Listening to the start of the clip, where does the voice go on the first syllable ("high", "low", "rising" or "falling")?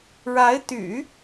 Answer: rising